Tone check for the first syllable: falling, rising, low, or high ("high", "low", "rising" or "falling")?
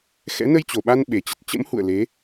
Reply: rising